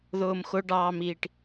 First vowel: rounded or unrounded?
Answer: rounded